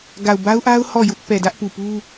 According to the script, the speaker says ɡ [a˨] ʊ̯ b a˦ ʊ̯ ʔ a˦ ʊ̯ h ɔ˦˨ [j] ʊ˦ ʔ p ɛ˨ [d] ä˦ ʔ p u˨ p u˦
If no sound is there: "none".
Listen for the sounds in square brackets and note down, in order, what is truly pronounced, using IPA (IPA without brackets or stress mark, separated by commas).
a˨, j, d